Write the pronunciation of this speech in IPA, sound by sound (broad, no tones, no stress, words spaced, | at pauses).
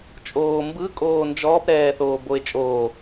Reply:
t͡ʃʼoːmbɯ kʼoːnd͡ʒɔːp ɾɛːθoːboe̯t͡ʃʼoː